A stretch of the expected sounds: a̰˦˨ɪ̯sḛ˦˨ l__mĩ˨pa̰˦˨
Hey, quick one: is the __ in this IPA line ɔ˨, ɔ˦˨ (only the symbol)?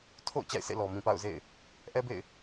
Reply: ɔ˨